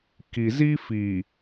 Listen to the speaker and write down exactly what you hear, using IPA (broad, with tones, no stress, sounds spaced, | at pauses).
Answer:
k i˨ z i˦ f iː˨